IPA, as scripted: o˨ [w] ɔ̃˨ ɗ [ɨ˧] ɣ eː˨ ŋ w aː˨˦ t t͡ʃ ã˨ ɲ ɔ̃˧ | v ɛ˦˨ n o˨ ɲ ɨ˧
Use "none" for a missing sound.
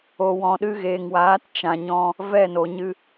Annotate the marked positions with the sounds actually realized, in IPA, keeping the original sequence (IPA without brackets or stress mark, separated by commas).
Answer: w, ɨ˧